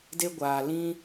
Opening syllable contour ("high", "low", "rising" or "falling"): high